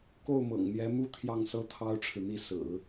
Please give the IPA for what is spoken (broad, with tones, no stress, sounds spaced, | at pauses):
k o˥˩ ʊ̯ m ɤ̰˨˩ ŋ n̪ j ɛ˧˥ m u˥ t̪ʰ j ɑ˥˩ ŋ s ɤ˥ t̪ʰ ɑ˥ ʊ̯ ʈ͡ʂʰ ɻ̩˨ n̪ i˥˩ s ɹ̩˨˩˦